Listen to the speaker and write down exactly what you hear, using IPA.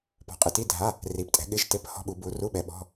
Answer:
p ɔ̤˨˦ qʼ ɪ˨˦ t i˧˥˧ dʱ a˧˥˧ | r i˨˦ p tʼ ɛ̤˨˦ ɠ ɪ˧˥˧ ʒ t e˧˥˧ p h ɔ̤˧˥˧ ɓ u˨˦ b u˨˦ r u˧˥˧ ɓ ɛ˨˦ ɓ ɔ̤˧˥˧

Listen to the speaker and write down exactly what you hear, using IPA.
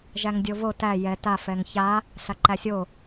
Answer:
ʒ æ ŋ dʲ o v o t æ j ɛ t a f ɛ ŋ ç a | ɬ a ǃ æ sʲ o

